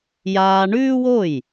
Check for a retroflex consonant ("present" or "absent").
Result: present